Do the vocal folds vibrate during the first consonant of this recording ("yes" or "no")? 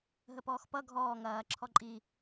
yes